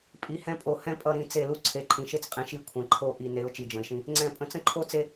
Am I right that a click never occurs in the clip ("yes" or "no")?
no